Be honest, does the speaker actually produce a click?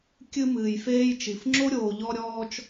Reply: yes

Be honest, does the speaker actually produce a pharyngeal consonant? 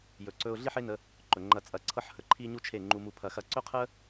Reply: yes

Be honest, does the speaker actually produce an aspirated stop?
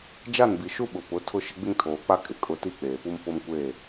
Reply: yes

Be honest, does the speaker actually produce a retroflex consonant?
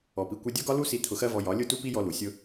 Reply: no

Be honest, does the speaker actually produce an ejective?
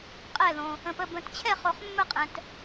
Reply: yes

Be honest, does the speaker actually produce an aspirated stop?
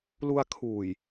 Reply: yes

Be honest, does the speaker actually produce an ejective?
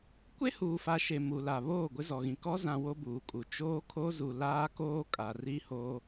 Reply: yes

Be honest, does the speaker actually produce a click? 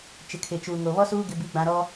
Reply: no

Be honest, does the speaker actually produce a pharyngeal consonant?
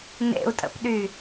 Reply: no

